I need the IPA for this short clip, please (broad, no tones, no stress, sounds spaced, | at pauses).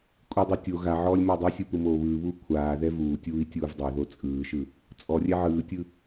kʷʼ i dˤ u tʲ o ɣ a ʕ ɔː lʲ m ɔ dˤ o sʲ ɯ p ɯ m oː β ɯː β uː kʷʰ aː ð ɛ v uː tʲ uː i̯ tʲ uː v dˤ o ð o t͡sʼ ɯː ʃ ɯ | t͡sʼ ɔ rʲ ɛ ʕ ɯː tʲ ɯ